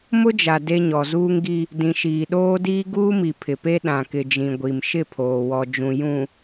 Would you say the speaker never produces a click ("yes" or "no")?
yes